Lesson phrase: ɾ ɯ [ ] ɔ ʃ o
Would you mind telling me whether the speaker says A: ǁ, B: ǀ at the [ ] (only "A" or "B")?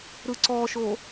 B